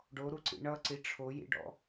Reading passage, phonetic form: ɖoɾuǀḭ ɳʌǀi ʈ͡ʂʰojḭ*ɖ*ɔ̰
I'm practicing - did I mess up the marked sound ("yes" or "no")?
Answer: no